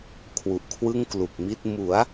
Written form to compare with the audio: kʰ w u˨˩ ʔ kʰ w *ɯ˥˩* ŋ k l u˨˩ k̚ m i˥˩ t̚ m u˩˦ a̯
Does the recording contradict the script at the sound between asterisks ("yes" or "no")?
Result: no